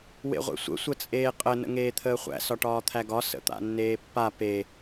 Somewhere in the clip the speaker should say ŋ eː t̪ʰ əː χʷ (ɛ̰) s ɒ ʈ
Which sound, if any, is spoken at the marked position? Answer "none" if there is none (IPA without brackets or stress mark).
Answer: æ̰